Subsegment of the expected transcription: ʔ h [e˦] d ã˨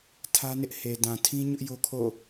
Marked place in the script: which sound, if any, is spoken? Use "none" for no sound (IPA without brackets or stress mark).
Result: e˨